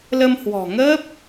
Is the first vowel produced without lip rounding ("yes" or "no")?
yes